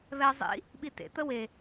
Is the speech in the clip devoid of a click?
yes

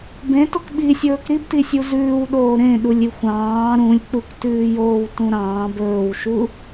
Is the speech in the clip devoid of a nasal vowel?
no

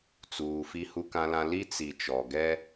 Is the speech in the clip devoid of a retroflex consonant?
yes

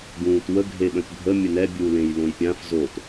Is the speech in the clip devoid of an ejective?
yes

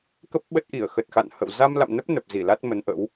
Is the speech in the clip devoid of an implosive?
no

